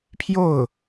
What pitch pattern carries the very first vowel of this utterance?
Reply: falling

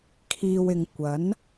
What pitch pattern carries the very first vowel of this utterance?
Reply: low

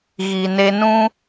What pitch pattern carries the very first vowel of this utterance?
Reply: low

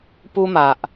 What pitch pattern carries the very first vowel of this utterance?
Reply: high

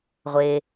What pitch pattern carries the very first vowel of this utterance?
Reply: low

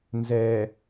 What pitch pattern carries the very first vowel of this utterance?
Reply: low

